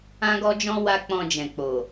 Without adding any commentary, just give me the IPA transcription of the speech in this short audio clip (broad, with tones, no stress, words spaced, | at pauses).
ã˦ɡɔ˦d͡ʒɔ̃˦ wa˦k͡pɔ̃˧d͡ʒɛ̃˨k͡po˨